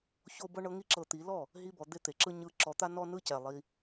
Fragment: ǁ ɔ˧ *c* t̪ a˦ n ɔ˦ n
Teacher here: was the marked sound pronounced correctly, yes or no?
no